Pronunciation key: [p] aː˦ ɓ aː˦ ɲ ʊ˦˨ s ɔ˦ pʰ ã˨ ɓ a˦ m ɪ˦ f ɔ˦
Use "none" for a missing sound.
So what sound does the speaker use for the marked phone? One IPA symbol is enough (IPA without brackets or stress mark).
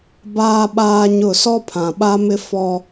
b